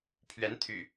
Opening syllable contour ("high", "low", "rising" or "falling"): rising